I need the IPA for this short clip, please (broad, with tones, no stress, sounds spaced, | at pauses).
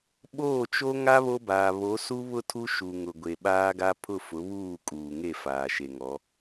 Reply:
ɓ oː˦˨ t͡ʃ o˦ ŋ a˦ β o˦ b aː˨ β o˨˦ s u˦ β ʊ˦ tʰ u˦ ʃ u˨ ŋ ʊ˨ ɡʷ e˨ ɓ aː˦ ɡ a˦ pʰ ʊ˦˨ f ʊ˨˦ β uː˦˨ kʼ uː˨ ŋ e˦˨ f aː˨ ʃ e˨ ŋ ɔ˨˦